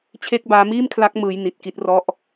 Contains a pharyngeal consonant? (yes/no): no